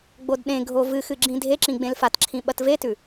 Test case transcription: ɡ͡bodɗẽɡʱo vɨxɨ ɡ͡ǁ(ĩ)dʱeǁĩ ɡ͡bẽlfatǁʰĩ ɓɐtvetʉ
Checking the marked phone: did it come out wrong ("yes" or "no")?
no